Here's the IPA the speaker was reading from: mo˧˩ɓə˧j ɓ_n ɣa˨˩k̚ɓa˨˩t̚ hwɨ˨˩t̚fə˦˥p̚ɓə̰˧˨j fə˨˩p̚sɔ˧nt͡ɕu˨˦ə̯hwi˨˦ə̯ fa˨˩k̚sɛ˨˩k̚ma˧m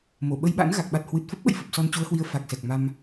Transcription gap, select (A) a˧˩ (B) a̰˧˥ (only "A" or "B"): B